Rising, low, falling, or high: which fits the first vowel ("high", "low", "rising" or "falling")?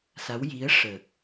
rising